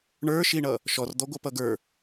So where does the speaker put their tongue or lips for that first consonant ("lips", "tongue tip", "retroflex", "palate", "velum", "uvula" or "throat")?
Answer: retroflex